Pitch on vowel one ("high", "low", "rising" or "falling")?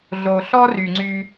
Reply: low